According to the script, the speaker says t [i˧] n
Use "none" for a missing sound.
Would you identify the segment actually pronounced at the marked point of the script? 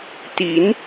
i˩˦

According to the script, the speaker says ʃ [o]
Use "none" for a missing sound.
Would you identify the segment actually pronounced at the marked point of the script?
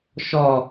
ɔ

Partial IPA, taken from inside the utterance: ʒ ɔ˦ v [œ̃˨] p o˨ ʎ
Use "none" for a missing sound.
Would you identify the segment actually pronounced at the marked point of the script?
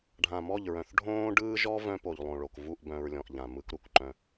œ̃˦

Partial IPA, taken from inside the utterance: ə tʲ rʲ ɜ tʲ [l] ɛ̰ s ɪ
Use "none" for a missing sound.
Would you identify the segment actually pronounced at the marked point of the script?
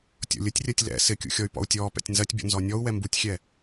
l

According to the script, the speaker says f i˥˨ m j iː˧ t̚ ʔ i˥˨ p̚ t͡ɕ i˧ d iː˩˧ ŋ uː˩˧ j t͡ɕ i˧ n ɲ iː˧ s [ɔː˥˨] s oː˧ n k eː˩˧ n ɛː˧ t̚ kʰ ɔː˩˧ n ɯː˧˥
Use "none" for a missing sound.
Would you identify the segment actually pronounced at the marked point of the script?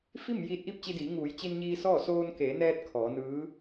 ɔː˥˨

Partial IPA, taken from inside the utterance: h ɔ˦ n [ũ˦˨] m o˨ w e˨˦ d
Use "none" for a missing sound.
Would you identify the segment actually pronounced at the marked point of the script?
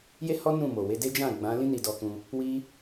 ũ˦˨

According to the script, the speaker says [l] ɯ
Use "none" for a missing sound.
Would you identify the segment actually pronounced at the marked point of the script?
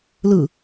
l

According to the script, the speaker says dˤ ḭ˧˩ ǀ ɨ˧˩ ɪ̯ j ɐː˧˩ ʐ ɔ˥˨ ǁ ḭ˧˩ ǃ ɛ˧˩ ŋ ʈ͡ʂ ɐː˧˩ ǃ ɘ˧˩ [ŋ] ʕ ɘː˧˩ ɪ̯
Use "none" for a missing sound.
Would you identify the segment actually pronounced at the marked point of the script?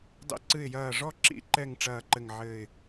ŋ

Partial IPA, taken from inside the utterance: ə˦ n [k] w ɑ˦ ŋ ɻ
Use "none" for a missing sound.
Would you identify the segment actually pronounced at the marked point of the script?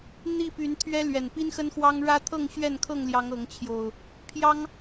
x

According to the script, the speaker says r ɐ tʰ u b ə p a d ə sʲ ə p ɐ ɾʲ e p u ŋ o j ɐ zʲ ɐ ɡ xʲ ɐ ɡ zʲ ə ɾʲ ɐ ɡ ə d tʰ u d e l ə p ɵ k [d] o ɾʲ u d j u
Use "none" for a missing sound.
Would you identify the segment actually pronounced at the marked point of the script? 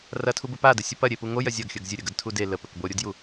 b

